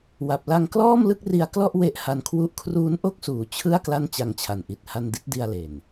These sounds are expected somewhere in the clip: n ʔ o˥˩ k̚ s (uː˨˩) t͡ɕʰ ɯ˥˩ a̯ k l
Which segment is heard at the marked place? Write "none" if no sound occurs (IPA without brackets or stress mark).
uː˨˩